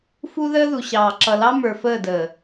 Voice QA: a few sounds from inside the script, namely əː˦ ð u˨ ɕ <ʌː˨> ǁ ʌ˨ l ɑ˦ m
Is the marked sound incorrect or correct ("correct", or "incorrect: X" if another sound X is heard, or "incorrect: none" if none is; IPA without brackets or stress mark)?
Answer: incorrect: ɑː˨